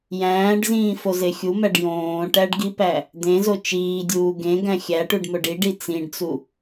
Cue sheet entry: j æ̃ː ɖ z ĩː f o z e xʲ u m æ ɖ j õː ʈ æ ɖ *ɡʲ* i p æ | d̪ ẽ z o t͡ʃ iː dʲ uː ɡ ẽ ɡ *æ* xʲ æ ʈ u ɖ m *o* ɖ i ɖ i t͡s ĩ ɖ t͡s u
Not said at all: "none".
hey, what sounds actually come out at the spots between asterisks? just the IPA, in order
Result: ɡ, æ̃, o

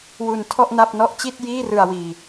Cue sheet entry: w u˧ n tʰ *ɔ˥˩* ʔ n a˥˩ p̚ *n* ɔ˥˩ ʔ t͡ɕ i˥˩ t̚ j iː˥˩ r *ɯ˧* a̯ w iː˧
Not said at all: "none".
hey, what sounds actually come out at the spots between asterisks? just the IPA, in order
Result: ɔ˥˩, n, ɯ˧

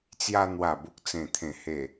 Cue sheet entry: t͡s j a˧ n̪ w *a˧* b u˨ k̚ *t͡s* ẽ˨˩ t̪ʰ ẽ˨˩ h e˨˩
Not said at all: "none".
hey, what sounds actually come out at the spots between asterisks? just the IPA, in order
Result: a˨˩, t͡s

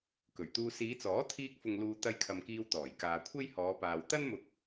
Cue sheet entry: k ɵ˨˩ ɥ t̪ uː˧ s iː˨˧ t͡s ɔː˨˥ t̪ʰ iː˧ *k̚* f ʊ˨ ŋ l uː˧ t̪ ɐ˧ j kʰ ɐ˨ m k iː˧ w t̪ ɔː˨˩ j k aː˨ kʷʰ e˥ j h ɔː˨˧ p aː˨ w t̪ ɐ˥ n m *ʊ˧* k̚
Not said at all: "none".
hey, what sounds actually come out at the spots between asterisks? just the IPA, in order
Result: k̚, ʊ˧

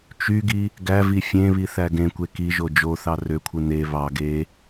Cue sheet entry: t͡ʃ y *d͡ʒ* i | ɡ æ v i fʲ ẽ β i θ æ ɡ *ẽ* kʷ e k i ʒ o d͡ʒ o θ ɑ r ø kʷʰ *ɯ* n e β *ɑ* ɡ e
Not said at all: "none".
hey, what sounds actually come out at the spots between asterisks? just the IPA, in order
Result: ɡ, ẽ, ɯ, ɑ

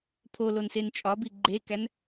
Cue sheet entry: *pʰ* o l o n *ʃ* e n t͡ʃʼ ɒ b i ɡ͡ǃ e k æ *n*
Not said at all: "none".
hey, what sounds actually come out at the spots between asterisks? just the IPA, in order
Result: pʰ, s, n

